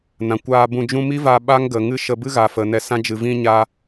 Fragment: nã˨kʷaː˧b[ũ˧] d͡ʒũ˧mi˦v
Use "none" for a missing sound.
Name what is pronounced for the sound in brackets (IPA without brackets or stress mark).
ũ˧